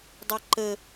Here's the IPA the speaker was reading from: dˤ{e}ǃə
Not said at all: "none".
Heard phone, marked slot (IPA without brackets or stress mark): e